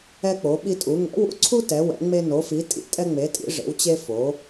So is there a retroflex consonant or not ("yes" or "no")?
yes